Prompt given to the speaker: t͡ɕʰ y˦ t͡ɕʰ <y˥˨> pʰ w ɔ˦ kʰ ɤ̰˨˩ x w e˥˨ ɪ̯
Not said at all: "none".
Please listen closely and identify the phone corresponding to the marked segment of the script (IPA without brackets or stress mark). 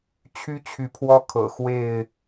y˨˦